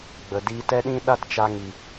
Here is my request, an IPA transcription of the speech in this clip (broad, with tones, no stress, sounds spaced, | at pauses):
ɡ͡b ə˨ d i˧ t ɛ˦ ɗ ĩ˦ ɗ a˦ t t͡ʃ a˧ ŋ i˨